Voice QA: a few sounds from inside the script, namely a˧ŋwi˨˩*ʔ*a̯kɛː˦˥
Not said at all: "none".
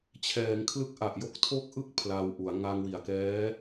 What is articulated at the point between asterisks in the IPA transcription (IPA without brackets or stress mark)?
none